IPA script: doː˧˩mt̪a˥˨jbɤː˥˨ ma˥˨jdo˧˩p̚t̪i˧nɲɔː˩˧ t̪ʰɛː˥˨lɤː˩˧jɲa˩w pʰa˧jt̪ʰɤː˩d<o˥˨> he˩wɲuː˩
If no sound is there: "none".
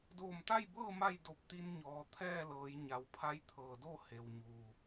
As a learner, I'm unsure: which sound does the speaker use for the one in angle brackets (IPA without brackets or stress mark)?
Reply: o˥˨